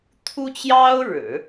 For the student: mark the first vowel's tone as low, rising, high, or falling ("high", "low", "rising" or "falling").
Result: high